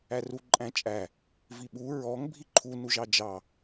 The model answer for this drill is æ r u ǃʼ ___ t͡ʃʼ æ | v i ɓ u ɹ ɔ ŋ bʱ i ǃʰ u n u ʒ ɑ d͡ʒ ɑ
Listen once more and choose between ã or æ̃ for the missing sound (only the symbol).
æ̃